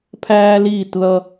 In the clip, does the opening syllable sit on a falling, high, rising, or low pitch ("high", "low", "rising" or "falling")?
high